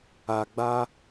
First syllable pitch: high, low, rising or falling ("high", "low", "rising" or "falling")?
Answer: low